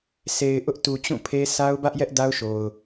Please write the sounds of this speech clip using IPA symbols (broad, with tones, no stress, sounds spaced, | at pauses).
sʰ e˨ ɪ̯ ʔ ʊ˦ ʔ t u˨ t͡ɕ ũ˦˨ pʰ e˦ s a˦ ʊ̯ b ä˦ ʔ j ɛ˦ ʔ d a˦ ʊ̯ ʃ o˨ ʊ̯